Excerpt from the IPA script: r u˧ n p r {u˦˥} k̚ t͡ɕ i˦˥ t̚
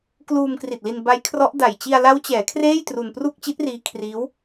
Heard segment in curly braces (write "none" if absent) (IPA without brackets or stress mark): u˥˩